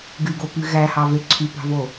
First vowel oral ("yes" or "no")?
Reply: yes